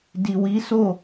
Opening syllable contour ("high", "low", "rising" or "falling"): low